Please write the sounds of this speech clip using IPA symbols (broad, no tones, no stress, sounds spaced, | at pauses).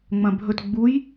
ŋ͡m ɐ̃ bʱ ɵ t ɡ͡b u j